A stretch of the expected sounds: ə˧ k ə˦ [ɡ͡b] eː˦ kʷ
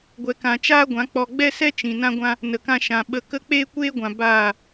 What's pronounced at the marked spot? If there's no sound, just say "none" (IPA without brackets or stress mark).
k͡p